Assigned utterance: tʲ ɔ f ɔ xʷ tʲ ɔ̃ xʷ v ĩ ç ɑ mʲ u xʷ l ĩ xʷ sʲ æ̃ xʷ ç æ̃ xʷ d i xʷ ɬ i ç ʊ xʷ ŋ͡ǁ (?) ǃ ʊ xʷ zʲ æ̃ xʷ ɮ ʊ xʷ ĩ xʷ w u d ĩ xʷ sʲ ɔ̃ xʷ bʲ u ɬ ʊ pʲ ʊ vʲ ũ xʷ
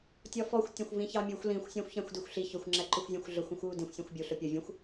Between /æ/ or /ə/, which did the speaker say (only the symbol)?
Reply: æ